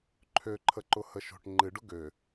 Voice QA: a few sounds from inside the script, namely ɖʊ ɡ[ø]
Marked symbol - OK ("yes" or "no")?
yes